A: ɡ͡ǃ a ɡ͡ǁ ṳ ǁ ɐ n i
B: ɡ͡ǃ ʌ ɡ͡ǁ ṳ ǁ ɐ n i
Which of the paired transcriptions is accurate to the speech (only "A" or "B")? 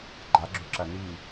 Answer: A